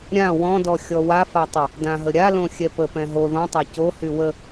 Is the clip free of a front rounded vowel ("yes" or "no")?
no